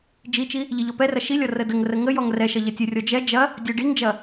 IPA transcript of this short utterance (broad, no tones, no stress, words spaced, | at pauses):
d͡ʒit͡ʃi | ʎiʎɔpɛrɐ ʃilʲɔ rədəŋrə ŋə jɔŋrɛʃɐ ʎɐtʲərʲɔ d͡ʒɛ d͡ʒɐ | dʲə ɖiŋd͡ʒɐ